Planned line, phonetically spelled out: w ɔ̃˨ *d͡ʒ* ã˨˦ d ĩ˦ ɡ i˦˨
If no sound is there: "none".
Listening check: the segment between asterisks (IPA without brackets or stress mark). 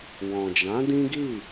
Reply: d͡ʒ